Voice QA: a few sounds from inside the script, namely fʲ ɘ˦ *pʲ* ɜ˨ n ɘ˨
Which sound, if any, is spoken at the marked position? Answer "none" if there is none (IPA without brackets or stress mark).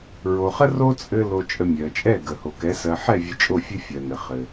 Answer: fʲ